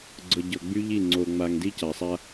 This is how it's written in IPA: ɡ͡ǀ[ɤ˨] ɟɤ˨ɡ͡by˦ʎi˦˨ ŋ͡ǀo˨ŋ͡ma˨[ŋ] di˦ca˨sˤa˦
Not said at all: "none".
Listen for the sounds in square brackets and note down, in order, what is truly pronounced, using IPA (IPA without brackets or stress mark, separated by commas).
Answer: ɤ˨, ŋ